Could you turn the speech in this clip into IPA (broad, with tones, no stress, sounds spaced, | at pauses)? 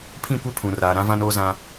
pʰ ĩ˦˨ kʷ e˦ pʰ ũ˨ r aː˨ ɾ ã˦ v ã˦ n oː˦ z ã˦